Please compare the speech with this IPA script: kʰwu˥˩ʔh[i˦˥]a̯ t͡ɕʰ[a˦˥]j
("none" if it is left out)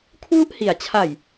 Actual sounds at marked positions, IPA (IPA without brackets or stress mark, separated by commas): i˩˦, a˨˩